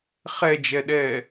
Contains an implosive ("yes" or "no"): yes